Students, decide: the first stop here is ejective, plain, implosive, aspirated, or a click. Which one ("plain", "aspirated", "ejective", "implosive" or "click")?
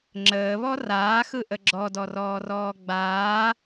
click